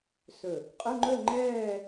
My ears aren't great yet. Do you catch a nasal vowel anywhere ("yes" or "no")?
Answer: no